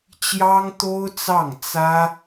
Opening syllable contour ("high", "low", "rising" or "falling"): high